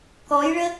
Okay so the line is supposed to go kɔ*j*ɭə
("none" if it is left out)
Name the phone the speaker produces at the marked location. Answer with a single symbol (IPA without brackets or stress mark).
j